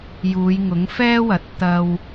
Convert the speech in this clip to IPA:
j uː˨˧ j ŋ ʊ˨˥ ŋ f ɛː˥ w ɐ˨˥ t̚ t̪ ɐ˧ w

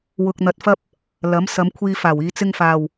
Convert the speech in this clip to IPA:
w ʊ˧ k̚ n̪ ɐ˧ t̚ f ɐ˥ p̚ | l ɐ˨˥ m s ɐ˨˧ m kʷʰ iː˧ f aː˨˩ w iː˨˧ t͡s ɪ˧ ŋ f aː˨˩ w

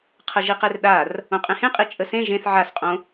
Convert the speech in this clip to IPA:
qʰ ə ʒ i q e r ɗ a r | õ qʼ ẽ h ẽ qʼ i t͡ʃʼ ə s ẽ ʒ ẽ θ ʕ a s qʼ õ

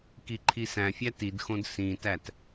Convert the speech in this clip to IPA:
k i ǃʰ i s æ̃ fʲ æ t i d x õ d s ĩ t æ t

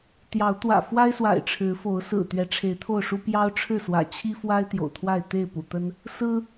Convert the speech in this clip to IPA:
t̪ j ɑ˨˦ ʊ̯ t̪ w ä̰˨˩ f w a˦ ɪ̯ s w a̰˨˩ ɪ̯ ʈ͡ʂʰ ɻ̩˨˦ f o˨˦ ʊ̯ s ɹ̩˨˩ t̪ ɥ ɛ˨˦ ʈ͡ʂʰ e˨˦ ɪ̯ t̪ʰ o˥˨ ʊ̯ ʂ u˦ p j ɑ˦ ʊ̯ ʈ͡ʂʰ ɻ̩˥˨ s w ä̰˨˩ t͡ɕʰ i˦ f w a˦ ɪ̯ t̪ j o̰˨˩ ʊ̯ t̪ʰ w a˥˨ ɪ̯ t̪ e˥˨ ɪ̯ p ṵ˨˩ t̪ ə˦ n | s ɹ̩˦

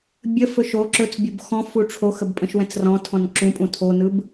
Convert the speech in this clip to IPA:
bʲ ə f ɵ ʃ o ǁ ɵ t͡s bʲ o b x ɔ̃ f u ʈ͡ʂʰ o x ə b pʼ ə̃ ʃ w ɛ̃ t͡s r ɔ̃ tʰ ɔ̃ n ǁ ũ pʼ ũ tʰ o n ɯ b

